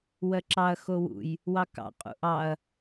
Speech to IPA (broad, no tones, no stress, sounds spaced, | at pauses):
w ɜ ǁ ɑ ɐ̯ x o w ṵ j | w ɑ k ɑ̰ qʼ ṵ ʔ ɑ ɐ̯